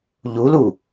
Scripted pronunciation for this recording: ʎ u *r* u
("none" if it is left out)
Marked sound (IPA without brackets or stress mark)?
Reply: l